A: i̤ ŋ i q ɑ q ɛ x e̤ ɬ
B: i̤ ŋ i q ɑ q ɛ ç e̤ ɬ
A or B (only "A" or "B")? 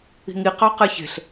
B